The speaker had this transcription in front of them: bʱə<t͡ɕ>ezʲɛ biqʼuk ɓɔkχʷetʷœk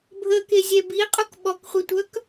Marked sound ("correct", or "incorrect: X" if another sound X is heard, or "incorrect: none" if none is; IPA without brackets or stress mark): incorrect: k